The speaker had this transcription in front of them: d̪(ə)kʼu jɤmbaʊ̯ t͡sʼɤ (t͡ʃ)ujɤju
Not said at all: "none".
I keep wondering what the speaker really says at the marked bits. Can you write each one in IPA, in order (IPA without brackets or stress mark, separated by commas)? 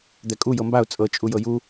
ɛ, t͡ʃʼ